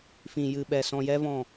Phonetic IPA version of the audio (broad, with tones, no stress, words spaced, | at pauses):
fĩ˨jɨ˨ɓɛ˨ sɔ̃˧jɛ˦vɔ̃˦˨